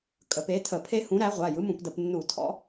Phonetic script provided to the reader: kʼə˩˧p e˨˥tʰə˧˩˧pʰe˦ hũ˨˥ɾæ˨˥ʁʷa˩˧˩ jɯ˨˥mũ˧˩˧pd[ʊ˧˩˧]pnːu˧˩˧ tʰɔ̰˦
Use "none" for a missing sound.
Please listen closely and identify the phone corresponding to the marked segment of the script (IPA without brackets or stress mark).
ə˧˩˧